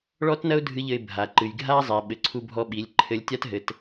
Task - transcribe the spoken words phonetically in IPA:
ɭɔ˥tnɐ˥ʊ̯ dʱɨ˧˥ʎɘ˧ɪ̯ bʱa˩ǃɨ˩jɡʱa˥zˤi˩ ɓɘ˩ǀʰu˧bʱɔ˧ɓi˩˧lʲ ǃʰɘ˧lʲ tʲa˥tɦɘ˩˧t

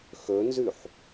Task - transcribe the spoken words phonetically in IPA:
xɵnzʉħ

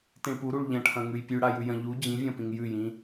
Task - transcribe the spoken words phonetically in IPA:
tĩɭpuɾuɭ ʎɐ̃ʈʰɐ̃ŋʉj pʲʉɽa jʉjɐ̃ ʎu d͡ʑĩvʲɐ̃pĩŋ jʉjĩ

